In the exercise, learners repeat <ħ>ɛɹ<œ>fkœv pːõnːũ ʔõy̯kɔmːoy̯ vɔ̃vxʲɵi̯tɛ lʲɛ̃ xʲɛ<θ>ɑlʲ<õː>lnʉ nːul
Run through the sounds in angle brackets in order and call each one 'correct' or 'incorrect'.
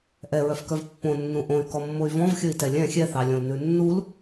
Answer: incorrect, correct, correct, incorrect

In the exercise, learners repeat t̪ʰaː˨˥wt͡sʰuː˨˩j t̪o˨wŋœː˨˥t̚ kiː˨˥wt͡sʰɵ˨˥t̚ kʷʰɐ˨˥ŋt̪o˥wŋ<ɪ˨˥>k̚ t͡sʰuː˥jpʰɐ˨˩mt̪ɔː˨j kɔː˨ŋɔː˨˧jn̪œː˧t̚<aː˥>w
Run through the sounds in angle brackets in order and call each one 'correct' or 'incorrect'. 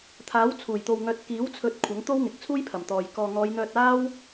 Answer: correct, correct

